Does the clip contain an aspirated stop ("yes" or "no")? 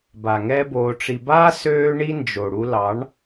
no